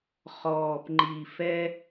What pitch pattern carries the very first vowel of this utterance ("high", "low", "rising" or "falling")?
low